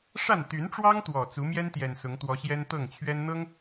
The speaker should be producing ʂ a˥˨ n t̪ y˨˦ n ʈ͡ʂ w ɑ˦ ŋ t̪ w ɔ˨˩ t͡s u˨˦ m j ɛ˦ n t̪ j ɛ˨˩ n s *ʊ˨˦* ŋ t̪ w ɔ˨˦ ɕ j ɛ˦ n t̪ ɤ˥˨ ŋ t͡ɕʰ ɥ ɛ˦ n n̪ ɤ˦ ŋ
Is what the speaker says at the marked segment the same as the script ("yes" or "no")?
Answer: yes